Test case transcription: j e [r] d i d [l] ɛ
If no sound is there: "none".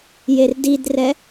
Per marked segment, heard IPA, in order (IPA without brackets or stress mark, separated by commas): r, r